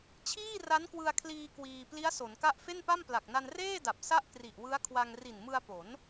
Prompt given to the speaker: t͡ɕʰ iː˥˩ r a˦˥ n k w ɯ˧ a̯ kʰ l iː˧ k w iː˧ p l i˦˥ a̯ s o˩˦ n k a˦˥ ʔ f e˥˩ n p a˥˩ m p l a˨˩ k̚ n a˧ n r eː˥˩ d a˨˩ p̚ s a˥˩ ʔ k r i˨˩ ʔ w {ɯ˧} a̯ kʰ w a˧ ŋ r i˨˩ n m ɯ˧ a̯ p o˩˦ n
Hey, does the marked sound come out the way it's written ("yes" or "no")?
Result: no